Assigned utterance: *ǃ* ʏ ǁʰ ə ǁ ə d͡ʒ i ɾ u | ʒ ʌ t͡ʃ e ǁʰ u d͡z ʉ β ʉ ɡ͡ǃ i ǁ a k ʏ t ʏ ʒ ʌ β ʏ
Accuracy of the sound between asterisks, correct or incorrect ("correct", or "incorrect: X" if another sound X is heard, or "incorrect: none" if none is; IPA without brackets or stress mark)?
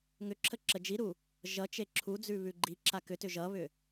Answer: incorrect: ŋ